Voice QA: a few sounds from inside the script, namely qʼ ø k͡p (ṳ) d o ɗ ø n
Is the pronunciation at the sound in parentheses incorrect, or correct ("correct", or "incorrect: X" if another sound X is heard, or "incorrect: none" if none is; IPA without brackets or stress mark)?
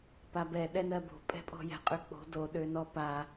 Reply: incorrect: o̤